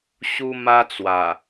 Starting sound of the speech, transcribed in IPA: ɕ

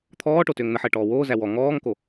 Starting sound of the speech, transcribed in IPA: t̪ʰ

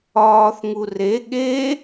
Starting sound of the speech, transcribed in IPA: ɒː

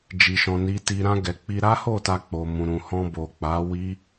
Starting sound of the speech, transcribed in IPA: d͡ʒ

